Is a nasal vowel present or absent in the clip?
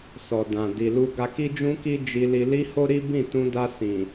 present